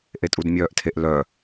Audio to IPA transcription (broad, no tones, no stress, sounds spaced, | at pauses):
ʔ e tʼ u d mʲ œː ʔ tʰ e ʔ l œ